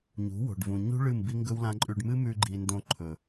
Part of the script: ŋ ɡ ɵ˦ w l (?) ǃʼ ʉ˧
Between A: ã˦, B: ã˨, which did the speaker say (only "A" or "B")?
A